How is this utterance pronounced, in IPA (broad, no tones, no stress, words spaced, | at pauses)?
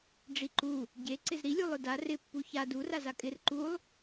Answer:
ɖ͡ʐiǃu | ɟe ǀɪzɾilʲu lˠʊda rɪpːu ça duraza kʼɪr ǃulˠ